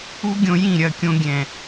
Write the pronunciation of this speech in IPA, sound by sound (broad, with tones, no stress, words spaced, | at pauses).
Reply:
u˦ɡʲõ˧jĩ˦˨ɾʲɐ˦˨ kʲõ˧ɡʲɛ̃˨